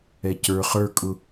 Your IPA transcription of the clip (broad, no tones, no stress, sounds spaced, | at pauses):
ɛ c ə˞ χ ə˞ kʼ ʊ